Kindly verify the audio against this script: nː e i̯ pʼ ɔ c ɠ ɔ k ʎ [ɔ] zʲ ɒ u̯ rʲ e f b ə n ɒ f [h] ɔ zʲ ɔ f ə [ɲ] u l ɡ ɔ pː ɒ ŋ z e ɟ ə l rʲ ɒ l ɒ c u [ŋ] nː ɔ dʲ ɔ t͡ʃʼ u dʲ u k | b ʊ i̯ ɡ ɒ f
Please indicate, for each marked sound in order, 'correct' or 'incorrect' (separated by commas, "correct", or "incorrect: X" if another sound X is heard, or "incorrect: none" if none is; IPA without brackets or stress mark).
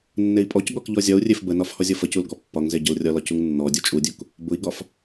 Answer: correct, correct, incorrect: c, correct